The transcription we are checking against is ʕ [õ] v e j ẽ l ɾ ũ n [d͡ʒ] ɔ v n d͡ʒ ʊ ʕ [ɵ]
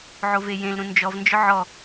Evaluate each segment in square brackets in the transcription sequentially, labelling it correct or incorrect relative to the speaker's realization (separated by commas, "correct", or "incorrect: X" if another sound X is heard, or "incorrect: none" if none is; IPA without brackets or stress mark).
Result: incorrect: o, correct, incorrect: ɔ